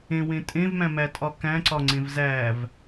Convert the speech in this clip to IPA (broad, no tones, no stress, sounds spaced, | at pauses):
ẽ w ẽ tʼ ẽ v m æ̃ m æ tʼ ɒ k æ̃ ǀ ɒ ŋ͡ǀ ẽ v z æ v